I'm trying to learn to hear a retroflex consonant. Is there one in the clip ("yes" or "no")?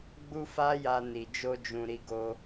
no